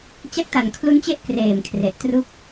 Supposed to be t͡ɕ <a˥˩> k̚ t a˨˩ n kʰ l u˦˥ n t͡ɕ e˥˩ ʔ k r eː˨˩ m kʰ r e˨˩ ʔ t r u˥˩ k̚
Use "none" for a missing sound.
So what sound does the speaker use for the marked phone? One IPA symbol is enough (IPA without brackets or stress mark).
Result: a˥˩